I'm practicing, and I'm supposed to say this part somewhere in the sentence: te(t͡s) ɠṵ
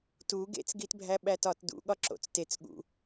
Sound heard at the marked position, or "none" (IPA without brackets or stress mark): t͡s